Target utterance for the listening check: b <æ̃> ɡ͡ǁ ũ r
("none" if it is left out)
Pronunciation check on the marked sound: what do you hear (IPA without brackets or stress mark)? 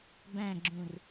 æ̃